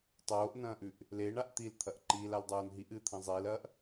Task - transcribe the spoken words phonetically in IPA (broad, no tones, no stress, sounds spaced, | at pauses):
tˤ oː ʔ n ɐ̃ː ʔ ʉ ʔ | l e ɳ a ʔ t̪ i l t̪ʰ ɐ ʔ ǃ i l a l dˤ oː n ɦ i ʔ ɨː t̪ʰ ɐ̃ zˤ iː l ɐː ʔ